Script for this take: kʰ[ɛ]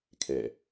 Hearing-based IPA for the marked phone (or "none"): ɛ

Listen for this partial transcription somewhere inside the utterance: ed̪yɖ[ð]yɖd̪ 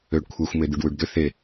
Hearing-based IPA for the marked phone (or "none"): w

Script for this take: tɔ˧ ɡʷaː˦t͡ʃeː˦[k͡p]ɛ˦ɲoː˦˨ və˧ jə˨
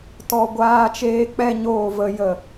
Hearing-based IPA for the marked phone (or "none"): k͡p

